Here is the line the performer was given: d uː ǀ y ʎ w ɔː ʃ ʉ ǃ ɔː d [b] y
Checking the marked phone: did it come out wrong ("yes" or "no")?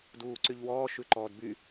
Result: no